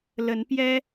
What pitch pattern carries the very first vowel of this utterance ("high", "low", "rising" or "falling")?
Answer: rising